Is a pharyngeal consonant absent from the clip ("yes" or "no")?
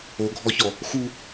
yes